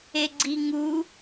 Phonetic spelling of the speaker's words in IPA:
eɡ͡ǀiŋu

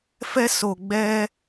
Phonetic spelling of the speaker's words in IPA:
fɛ˦so˨ ɡ͡bɛ˦

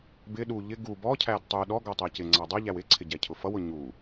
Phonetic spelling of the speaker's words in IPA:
bɪ ɗu ʎɪ ɡu bɔcʰæd tˤu ɗɔɡɔ tˤɜcɪŋ͡ǀɑ dˤʌʎæw ɪǀʰɪ ɟɛcʰʊfʌwʊ ɲu

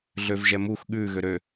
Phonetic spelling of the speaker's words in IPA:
ɮøvʒɛmux ɠʉ ɣøɾø

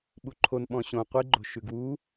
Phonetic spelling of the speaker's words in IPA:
ɓuǃʰon ɓɔ̃ɕõ qʷiɡ͡ǃo̤ ʃʉɡwu

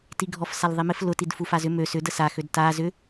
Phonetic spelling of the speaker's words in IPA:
tiɡʱɔfsal ðˤimɪf lʊtid fufazʏ mø sʏ dəsaxød ta zʏ

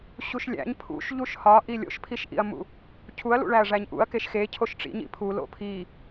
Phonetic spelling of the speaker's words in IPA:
ɕuʃlʲæ̰ɲ pʰṵʃ ʎuʃhɒʔi lʲo̰ʃpʰiʃʔḭɐ̯mṵ | cʰuɐ̯lṵɭæɐ̯ ʐæɲʔṵɐ̯ keʃxe cʰoʃʈ͡ʂḭɲḭ pʰulo̰ pʰi

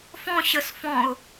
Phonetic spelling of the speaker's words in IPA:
fɔ̃ ɕəs fɔ̃ʊ̯

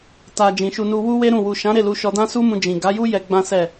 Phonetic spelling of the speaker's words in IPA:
ta˨ d͡ʒĩ˨ʃu˧nu˧ wu˦we˦ɾũ˦˨ wu˨ʃã˨˦ ɾe˦˨lu˧ʃɔ˧dã˦ su˦mũ˧d͡ʒĩ˨ ɡa˨˦ju˦ jɛ˧ɡ͡bã˦sɛ˦˨

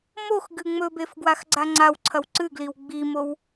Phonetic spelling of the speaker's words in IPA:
mox ɡɨŋ͡mɵbef ɡwaxɡ͡ǀaŋ͡ǀawǀʰɐw ǀɨɡliw ɡ͡bimow

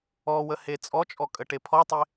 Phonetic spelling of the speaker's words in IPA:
ɔwəhe t͡sʼɔt͡ʃʼɔkʼəʈe pʰɔtˤe

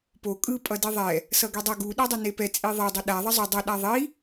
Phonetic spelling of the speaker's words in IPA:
po kʼɯ pʼʌdiðˤɛ | sʌɡedˤʌ ɡu ɗɛdˤʌnepɛ t͡sʼiðˤe dˤʌɗa ðˤʌzˤo dˤʌ ɗaðˤi

